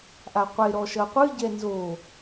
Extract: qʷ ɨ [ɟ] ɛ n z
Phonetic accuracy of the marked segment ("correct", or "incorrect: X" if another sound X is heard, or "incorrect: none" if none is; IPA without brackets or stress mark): correct